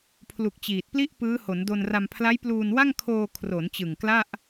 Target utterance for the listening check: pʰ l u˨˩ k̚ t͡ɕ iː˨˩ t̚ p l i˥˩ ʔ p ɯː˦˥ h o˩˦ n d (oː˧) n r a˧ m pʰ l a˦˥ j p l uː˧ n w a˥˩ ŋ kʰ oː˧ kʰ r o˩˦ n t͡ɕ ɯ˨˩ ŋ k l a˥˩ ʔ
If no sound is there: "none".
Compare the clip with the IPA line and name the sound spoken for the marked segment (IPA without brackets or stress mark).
o˧